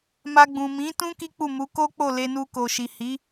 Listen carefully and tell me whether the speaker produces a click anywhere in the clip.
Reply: no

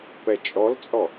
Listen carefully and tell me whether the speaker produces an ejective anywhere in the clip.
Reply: yes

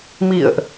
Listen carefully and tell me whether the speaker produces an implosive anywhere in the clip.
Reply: no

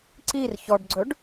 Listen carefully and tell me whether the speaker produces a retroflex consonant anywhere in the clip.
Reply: yes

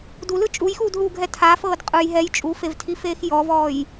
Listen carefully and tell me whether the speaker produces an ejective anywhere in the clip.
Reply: yes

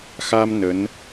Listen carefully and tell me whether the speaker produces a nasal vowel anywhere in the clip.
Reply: no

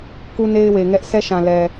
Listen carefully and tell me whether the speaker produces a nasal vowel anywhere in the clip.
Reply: yes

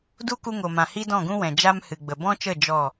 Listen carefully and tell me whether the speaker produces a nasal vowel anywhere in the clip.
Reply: yes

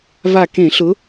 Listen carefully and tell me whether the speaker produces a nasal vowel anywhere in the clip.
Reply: yes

